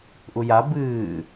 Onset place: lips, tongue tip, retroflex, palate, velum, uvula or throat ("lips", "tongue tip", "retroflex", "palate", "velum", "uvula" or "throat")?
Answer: throat